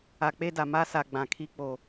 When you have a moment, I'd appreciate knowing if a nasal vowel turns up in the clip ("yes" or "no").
yes